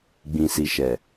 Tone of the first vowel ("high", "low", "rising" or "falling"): low